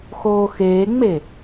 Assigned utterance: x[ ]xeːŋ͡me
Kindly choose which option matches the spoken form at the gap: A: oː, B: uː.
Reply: A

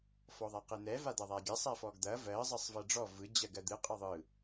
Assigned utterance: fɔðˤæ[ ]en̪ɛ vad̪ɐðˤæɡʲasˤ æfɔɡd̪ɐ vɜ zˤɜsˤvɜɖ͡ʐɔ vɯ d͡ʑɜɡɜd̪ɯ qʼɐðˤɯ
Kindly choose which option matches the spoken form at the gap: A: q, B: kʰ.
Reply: A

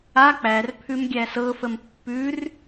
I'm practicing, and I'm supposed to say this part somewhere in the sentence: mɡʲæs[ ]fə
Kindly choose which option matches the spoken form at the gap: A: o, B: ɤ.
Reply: B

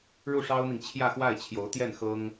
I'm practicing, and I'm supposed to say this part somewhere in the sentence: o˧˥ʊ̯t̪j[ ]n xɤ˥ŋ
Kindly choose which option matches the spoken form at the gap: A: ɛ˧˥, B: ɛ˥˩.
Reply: B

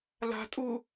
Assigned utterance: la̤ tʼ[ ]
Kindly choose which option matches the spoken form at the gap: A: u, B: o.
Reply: A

